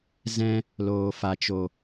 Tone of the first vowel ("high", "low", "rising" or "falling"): high